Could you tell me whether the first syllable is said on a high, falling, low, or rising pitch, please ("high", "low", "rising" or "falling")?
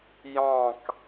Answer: falling